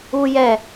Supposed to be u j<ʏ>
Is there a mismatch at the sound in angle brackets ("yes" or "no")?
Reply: yes